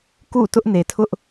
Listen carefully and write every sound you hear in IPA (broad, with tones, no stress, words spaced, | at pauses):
kṵ˦˨tʊ˦ʔne˨tʰʊ˦ʔ